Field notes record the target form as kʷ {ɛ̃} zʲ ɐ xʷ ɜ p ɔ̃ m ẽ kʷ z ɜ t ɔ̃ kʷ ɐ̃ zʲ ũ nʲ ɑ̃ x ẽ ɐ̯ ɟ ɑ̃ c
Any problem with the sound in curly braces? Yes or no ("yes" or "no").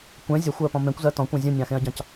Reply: no